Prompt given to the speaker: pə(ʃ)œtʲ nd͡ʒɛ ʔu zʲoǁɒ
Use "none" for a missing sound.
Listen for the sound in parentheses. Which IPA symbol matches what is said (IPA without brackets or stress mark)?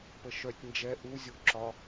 ʃ